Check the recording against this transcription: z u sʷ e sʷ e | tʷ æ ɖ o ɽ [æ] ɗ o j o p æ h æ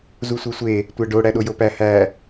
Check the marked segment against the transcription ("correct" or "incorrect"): correct